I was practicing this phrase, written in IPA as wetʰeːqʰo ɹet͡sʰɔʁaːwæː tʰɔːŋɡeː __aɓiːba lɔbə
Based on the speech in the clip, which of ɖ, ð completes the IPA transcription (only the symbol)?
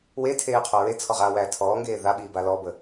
ð